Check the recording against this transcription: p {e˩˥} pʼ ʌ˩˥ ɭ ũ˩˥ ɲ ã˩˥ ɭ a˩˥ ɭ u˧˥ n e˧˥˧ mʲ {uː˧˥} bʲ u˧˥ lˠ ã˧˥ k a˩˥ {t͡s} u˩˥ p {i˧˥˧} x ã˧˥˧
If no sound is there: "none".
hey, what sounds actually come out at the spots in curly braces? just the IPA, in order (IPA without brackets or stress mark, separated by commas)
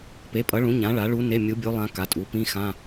e˩˥, u˧˥, tʼ, ĩ˧˥˧